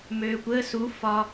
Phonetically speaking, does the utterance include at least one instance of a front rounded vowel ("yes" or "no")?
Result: yes